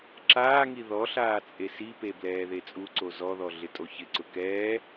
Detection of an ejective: present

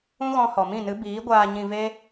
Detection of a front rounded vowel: absent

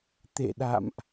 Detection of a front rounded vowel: absent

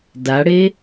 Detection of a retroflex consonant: present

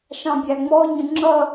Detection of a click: present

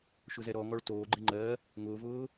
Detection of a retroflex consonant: present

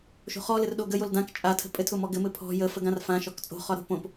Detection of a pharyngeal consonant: absent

